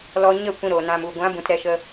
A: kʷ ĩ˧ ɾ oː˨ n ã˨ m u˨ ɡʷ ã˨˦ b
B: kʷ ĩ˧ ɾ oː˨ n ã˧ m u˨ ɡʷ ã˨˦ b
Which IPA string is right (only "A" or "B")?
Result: A